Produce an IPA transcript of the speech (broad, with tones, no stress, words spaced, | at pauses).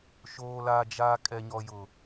ʃoː˦la˦d͡ʒa˦ kʼɛ˦ɲɔ˦jʊ˦